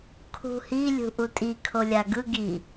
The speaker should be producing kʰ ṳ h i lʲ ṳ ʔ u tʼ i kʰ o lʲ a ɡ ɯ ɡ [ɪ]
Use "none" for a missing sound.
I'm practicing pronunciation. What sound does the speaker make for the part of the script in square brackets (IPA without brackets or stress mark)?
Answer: i